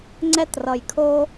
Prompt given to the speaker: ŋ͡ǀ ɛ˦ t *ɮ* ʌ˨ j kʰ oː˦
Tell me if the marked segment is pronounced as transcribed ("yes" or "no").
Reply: no